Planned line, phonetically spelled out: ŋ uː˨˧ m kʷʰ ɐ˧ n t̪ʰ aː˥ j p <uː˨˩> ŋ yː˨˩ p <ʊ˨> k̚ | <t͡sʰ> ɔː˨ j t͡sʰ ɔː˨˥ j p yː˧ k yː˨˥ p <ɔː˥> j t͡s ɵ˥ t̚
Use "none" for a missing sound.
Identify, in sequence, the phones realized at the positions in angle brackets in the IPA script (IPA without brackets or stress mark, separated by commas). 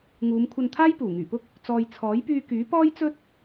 uː˨˩, ʊ˥, t͡s, ɔː˥